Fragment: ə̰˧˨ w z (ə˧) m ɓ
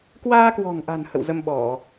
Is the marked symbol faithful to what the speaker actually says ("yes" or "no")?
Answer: yes